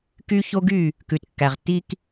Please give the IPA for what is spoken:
k y˦ ç o˦ ɡ y˦˨ | k ʉ˨ t kː æ˨ ʁ tː i˦ k

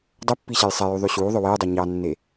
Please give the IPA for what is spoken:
dˤ ɵ pː i ɕ ɛ j sˤ ɛ j y ðˤ y ɕ uː ðˤ ɵ w e j dˤ ɛ ɲ ɑ nː e

